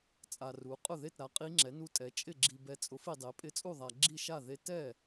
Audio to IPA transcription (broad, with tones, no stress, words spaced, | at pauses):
t͡sʼa˨ru˩˥qʼʊ˥˩ðe˥˩t ɾa˩˥qʼi˧˥ŋ͡ǁɛ˩˥nu˧˥ tʼɛ˩˥t͡ʃʼɪ˥˩ɡ͡ǁi˨ bɛ˨t͡sʼʊ˩˥f i˨dˤe˩˥ pʼɪ˧˥t͡sʼu˥˩ðˤa˨ ɡ͡ǁi˥˩ʃa˥˩ðe˧˥ tɛ˥˩